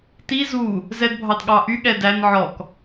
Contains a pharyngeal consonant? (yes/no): yes